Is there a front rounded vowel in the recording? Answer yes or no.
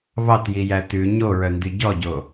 yes